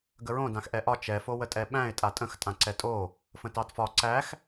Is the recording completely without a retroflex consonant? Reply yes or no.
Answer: yes